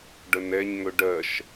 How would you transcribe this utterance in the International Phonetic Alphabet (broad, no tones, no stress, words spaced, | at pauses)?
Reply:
ɖənɛɲ ŋɵɖɜʃ